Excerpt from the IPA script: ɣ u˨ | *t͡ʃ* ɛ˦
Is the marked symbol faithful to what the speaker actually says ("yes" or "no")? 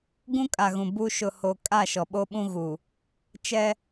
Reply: yes